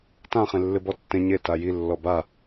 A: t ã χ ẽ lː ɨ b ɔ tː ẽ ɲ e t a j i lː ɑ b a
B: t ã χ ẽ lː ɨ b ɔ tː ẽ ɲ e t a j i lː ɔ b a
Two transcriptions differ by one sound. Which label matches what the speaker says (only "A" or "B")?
B